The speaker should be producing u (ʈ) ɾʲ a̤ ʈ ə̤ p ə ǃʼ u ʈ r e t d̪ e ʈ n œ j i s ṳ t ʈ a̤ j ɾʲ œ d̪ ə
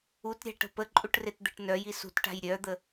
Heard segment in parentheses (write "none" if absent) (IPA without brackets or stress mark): t